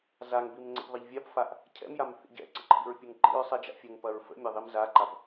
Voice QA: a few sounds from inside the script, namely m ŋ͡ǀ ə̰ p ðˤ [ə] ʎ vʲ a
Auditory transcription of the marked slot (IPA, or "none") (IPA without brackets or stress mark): ə